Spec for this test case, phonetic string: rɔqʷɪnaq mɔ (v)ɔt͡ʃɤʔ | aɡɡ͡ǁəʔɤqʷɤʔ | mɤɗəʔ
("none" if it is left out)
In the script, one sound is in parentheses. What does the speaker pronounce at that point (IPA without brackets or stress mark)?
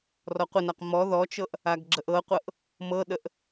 ð